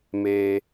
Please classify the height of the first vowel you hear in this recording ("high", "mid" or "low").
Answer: mid